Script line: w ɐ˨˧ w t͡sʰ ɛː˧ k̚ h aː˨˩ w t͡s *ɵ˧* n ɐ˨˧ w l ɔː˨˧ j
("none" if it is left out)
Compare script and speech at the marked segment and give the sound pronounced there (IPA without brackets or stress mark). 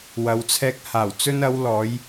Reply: ɵ˧